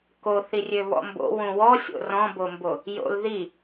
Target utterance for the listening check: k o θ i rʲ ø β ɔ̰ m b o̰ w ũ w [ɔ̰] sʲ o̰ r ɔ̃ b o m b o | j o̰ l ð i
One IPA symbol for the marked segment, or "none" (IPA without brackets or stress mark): ɔ